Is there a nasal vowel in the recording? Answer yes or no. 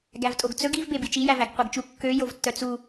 no